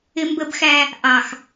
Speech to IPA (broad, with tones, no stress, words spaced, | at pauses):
ɪ˦mbə˦bxæ˦ | ʔɑ˨x